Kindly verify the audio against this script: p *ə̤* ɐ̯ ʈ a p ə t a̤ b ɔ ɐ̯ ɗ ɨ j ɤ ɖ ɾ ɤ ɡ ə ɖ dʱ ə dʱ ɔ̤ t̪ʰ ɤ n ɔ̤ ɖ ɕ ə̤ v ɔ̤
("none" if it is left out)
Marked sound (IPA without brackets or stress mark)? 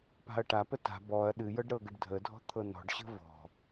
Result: a̤